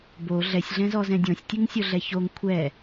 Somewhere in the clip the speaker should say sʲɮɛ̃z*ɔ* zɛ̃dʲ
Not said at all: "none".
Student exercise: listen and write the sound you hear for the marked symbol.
ɔ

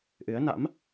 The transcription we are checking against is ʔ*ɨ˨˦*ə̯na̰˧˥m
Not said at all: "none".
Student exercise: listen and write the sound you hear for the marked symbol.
ɨ˨˦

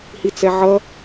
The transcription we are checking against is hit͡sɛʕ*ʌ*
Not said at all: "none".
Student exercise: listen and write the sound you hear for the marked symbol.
ʌ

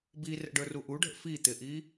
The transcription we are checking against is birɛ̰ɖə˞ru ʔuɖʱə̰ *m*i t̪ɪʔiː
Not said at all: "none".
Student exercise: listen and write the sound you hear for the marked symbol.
f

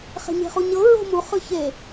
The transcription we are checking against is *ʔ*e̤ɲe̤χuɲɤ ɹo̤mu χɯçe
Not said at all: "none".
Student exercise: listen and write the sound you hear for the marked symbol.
χ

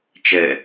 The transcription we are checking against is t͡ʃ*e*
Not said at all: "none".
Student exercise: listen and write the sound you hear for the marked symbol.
ɘ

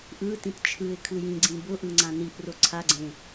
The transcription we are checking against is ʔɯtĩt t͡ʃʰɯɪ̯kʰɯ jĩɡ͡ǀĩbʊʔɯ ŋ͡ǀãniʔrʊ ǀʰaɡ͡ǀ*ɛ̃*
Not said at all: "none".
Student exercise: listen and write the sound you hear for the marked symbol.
ẽ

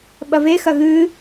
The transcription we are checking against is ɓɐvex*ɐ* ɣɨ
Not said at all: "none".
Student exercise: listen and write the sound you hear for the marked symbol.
ɐ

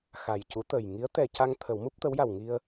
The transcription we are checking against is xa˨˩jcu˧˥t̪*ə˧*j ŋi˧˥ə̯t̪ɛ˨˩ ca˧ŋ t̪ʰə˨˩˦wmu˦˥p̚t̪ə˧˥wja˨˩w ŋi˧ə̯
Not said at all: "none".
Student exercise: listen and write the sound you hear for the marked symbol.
ə˨˩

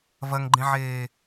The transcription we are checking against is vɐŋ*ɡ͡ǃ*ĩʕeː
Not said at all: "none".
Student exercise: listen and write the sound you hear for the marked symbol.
ɡ͡ǃ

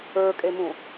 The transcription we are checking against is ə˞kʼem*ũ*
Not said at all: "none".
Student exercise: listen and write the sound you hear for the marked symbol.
ũ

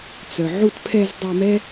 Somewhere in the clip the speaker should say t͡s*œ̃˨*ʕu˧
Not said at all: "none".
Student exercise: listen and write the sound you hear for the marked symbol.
œ˨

